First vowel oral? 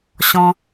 no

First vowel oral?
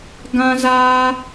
no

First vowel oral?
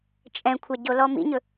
no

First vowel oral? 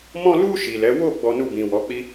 no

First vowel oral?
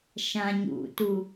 no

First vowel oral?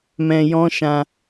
no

